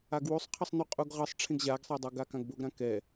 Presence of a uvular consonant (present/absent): present